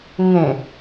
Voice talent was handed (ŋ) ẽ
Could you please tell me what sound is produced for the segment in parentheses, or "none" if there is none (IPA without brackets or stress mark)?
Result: ŋ